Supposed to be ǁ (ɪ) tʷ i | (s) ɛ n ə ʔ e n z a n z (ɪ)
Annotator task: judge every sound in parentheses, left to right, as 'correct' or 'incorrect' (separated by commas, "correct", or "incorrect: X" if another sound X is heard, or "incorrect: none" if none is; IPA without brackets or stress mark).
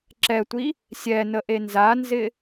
incorrect: ɛ, incorrect: sʲ, correct